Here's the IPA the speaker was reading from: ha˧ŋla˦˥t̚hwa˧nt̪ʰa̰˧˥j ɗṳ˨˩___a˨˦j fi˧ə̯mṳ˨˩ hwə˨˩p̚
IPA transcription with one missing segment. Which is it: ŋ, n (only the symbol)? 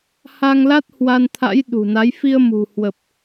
n